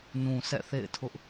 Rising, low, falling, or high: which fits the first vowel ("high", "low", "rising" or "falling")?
low